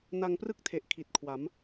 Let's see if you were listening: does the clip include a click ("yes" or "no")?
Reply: no